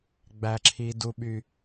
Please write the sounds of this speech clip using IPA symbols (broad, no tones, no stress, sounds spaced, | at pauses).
ɡ͡b æ ǁʰ i d u ɓ y